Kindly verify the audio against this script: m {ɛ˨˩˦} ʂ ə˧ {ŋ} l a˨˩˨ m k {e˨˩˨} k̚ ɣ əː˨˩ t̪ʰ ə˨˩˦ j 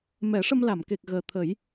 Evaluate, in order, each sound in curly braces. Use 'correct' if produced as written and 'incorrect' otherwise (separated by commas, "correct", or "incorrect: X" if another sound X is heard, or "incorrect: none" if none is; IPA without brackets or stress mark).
correct, incorrect: m, incorrect: e˨˩